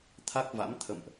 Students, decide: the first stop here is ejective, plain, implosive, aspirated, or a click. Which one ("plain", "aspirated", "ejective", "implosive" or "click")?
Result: aspirated